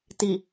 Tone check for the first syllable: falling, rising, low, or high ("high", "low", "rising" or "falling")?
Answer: low